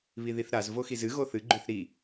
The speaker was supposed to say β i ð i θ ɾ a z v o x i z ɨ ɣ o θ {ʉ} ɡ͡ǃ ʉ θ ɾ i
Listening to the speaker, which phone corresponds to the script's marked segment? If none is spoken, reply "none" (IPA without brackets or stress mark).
ɨ